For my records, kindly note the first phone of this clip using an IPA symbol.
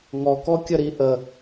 ŋ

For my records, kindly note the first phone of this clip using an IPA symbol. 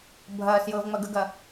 bʱ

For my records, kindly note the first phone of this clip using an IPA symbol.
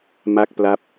m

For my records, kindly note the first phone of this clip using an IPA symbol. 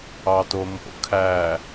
ɑ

